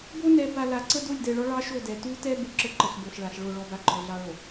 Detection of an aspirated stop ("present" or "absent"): absent